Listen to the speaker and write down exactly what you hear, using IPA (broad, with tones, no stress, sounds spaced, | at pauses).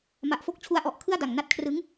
m a˨˩ ʔ f o˥˩ k̚ t͡ɕʰ u˦˥ a̯ ʔ ɔ˨˩ ʔ kʰ ɯ˥˩ a̯ d a˨˩ ŋ n a˦˥ t̚ kʰ r ɯ˦˥ ŋ